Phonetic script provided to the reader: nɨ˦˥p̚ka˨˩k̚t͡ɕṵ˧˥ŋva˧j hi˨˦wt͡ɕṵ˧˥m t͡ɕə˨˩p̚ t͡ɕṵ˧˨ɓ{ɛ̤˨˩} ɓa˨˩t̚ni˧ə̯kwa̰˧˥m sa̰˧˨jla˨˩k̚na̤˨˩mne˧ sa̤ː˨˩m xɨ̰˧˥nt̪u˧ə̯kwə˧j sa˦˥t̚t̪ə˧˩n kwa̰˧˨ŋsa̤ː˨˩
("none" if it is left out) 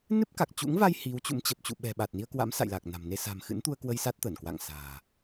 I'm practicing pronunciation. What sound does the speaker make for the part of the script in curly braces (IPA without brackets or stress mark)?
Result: ɛ̤˨˩